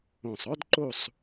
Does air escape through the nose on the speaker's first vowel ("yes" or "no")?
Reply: yes